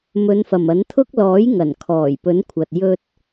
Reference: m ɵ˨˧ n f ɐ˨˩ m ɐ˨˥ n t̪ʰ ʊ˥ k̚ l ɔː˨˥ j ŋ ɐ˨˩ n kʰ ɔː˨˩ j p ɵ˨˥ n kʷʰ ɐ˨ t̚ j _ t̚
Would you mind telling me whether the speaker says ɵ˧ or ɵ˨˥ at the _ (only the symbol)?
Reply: ɵ˧